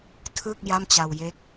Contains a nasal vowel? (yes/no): no